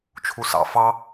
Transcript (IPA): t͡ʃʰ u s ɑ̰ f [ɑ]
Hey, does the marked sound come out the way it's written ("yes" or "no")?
yes